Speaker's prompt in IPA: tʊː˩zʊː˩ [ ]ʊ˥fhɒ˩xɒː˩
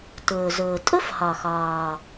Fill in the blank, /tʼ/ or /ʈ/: tʼ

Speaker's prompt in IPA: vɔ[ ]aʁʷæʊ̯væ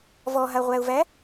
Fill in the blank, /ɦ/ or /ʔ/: ɦ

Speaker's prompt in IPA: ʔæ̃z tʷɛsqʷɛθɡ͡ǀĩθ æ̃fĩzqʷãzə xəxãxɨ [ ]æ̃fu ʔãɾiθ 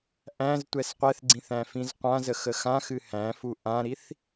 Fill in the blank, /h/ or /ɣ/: h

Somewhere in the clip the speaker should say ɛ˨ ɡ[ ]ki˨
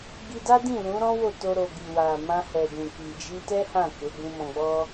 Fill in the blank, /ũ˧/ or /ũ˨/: ũ˨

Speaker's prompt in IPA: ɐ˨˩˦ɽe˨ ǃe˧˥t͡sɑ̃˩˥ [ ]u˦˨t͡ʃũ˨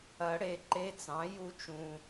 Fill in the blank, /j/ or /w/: j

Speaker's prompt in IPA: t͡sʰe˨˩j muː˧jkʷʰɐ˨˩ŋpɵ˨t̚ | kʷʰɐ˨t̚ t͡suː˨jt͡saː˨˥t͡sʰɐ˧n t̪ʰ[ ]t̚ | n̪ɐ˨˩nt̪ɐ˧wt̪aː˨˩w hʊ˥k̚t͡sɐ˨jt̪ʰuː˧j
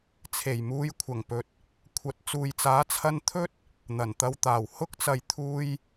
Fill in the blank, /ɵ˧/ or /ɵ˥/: ɵ˥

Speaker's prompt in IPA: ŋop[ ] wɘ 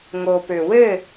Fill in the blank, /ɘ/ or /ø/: ø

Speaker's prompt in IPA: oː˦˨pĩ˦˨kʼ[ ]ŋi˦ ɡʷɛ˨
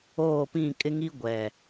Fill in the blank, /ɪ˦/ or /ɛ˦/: ɪ˦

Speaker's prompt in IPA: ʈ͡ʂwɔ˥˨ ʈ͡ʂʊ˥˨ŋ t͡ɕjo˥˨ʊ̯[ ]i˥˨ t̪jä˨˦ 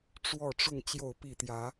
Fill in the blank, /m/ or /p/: p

